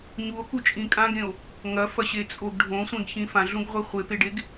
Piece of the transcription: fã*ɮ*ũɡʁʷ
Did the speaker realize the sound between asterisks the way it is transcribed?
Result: yes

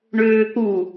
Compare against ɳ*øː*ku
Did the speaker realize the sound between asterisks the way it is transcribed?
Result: yes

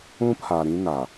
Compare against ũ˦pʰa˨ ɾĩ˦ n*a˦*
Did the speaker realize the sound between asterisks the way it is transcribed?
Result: no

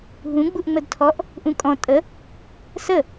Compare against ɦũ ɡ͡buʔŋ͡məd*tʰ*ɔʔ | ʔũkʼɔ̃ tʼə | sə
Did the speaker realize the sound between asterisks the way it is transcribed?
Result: yes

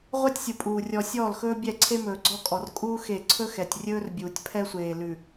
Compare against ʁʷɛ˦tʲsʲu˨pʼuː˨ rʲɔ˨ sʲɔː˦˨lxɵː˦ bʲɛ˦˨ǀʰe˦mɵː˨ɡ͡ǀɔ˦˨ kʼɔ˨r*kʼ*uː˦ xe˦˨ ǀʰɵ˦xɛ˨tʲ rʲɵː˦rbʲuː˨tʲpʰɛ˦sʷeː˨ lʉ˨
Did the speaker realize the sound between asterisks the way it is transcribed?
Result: yes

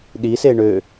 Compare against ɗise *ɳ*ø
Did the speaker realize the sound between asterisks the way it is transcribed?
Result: yes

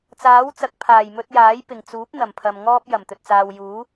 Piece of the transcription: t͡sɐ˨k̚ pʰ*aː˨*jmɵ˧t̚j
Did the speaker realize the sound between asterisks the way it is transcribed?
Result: no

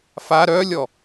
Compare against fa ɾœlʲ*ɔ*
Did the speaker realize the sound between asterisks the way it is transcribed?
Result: yes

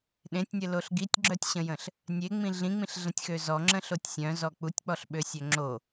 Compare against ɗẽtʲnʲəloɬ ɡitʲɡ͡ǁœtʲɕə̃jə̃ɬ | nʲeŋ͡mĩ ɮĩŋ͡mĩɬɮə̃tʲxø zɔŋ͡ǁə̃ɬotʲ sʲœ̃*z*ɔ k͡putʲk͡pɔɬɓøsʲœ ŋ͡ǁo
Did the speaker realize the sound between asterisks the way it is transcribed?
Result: yes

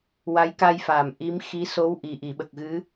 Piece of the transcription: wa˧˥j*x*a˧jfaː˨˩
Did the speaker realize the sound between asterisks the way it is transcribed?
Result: no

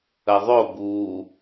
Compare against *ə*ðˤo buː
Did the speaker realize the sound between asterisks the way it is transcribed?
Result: yes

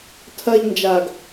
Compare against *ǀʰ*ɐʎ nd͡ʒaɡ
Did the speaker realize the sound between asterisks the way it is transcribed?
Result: no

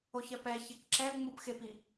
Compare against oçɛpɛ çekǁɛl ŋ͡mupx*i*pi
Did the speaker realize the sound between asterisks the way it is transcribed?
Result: no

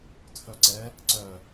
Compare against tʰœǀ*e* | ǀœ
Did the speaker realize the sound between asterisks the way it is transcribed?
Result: no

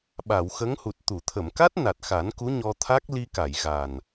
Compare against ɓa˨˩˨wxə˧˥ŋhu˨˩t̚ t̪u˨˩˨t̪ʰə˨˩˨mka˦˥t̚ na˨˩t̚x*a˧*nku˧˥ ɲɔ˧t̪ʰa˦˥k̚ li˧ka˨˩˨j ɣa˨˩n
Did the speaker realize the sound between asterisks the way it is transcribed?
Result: no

